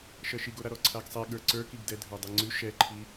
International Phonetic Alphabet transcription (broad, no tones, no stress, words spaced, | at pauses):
ʃɜʃiɡoɾa ɾɔǀʰaɡsˤɛ ɠə˞ǀə˞kiɡ dɛdʱə˞dˤiŋ͡ǀʉ ʃɛǃʰi